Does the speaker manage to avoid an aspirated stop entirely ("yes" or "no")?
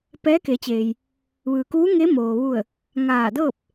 yes